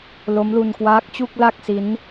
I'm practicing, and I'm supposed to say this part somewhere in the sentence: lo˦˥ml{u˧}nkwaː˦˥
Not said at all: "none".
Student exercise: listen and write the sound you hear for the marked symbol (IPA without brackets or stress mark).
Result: u˧